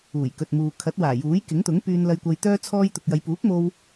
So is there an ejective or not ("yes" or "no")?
no